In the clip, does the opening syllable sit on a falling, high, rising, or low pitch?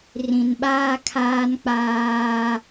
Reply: low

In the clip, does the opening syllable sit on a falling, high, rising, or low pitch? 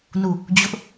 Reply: falling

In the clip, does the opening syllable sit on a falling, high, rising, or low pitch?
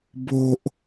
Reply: low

